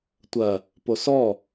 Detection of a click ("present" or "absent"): absent